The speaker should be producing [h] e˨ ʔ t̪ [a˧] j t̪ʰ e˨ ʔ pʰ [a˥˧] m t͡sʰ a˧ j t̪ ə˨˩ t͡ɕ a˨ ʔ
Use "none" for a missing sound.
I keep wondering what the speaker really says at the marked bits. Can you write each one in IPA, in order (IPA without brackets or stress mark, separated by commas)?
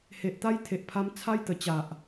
h, a˧, a˧